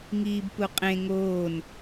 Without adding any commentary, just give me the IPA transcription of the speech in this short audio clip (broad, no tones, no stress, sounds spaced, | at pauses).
ŋ iː b p u qʼ ẽ ŋ oː n